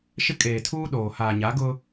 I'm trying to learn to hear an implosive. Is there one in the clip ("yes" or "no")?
yes